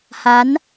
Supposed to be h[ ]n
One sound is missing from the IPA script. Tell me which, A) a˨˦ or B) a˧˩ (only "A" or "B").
A